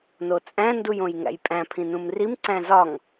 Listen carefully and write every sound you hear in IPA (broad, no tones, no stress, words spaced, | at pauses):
not͡sʼæ̃ ndujõjŋæ̰jpʼæ̃ pʰĩnũmrim ǀæ̃zɒŋ